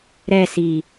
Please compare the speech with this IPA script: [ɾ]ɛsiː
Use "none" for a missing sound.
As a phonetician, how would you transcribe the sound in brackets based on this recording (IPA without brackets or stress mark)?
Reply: ɾ